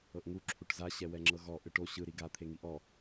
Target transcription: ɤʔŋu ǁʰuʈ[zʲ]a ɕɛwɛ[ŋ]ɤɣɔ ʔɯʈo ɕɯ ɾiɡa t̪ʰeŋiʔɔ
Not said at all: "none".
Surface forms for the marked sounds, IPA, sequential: z, ŋ͡ǁ

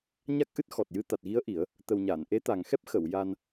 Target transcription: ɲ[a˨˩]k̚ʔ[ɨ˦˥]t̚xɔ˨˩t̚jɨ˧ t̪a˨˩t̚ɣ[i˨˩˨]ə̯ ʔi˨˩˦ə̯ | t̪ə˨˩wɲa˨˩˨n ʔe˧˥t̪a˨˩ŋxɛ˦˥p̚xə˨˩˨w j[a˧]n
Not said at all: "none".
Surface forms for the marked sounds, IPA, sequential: a˦˥, ɨ˦˥, i˧˥, a˧

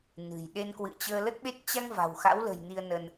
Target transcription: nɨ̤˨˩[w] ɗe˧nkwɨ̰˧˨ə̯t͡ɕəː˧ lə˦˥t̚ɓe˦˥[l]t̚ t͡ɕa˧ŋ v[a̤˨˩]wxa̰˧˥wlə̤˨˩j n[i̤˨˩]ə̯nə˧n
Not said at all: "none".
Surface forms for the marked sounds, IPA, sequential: j, none, a̤˨˩, i˧

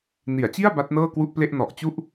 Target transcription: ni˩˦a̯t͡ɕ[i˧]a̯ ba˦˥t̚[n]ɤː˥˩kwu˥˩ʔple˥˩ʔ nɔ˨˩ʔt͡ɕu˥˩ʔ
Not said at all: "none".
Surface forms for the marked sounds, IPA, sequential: i˥˩, n

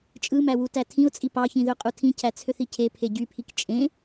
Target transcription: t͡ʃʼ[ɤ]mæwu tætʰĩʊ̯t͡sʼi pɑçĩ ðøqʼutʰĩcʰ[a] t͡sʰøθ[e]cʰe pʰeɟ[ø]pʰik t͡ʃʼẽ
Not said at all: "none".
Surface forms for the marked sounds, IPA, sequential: ɯ, æ, i, y

